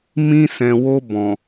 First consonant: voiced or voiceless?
voiced